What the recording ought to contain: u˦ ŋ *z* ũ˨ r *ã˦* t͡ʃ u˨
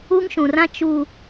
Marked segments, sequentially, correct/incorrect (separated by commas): incorrect, correct